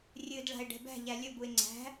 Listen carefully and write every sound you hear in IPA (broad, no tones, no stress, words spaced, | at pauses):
rʲɨdɭa̤e̯ ɖɛ̤bæ̤ʎæ lʲɵbue̯ ŋ͡ǀæ̤